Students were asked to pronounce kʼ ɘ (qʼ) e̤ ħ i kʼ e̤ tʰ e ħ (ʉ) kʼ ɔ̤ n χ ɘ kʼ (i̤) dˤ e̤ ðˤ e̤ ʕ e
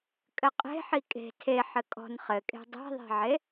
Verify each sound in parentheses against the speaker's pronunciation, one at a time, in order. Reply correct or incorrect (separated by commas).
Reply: correct, incorrect, incorrect